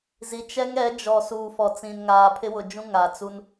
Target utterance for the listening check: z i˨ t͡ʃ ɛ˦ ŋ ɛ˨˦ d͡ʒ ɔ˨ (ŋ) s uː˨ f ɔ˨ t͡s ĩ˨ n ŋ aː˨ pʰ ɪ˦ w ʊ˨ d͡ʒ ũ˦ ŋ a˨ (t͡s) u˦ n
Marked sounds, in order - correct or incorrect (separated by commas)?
incorrect, correct